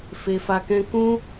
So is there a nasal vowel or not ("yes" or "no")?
yes